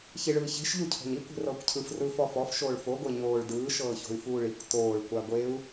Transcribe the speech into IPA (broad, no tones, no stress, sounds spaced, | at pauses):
ç i ɭ ɯː ç e̤ ʃ ʎ u cʰ o̤ ɲ i kʷ e̤ r ɤː kʷ cʰ ɯ f r ɯː f ɔ f ɔ f ʃ oː ɭ f o ɡʷ e ɲ oː ɭ d ɯː ʃ ɤː ç o̤ y̯ f uː ɭ i kʷ t oː ɭ kʷ a ɡʷ e u̯